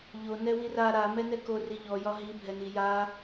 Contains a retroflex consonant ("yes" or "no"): no